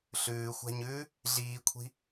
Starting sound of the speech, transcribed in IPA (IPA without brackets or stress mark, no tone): ɬ